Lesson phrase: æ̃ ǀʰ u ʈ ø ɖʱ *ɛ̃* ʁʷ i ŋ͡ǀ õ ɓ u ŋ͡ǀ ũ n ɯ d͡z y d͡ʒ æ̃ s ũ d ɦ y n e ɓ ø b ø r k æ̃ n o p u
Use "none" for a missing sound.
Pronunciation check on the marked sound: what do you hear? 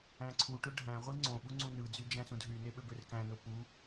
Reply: æ̃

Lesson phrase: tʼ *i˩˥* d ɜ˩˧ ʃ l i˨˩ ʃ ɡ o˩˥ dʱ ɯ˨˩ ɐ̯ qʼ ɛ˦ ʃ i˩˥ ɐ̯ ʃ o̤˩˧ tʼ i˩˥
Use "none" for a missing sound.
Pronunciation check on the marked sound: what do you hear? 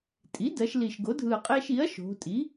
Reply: i˩˥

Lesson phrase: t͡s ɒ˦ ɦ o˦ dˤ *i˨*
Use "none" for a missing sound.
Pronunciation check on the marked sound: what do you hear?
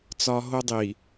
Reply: i˨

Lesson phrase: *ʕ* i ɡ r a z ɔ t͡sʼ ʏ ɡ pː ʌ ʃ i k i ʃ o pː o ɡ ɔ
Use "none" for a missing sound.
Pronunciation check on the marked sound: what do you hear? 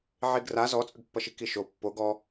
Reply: ʕ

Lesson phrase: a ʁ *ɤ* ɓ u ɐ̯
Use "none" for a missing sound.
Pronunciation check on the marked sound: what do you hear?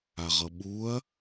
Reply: ɤ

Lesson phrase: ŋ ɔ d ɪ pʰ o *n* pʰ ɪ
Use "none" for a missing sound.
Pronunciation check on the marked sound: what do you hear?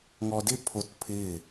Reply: t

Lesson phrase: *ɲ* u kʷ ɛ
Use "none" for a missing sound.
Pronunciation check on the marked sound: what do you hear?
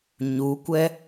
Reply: ɲ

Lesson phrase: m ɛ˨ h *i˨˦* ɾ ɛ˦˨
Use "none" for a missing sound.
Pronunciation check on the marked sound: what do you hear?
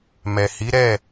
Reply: i˨˦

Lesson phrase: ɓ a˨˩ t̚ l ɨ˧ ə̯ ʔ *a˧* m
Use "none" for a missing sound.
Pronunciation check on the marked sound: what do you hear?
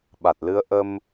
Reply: ə˧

